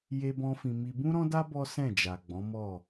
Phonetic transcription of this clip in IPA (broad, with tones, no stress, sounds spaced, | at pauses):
j e˦ b ɔ̃˦ f ĩ˧ m i˧ b ũ˦ ɾ ɔ̃˦ d a˦ b ɔ˦ s ɛ̃˦˨ d͡ʒ a˨ ɡ͡b ɔ̃˨˦ m ɔ˦˨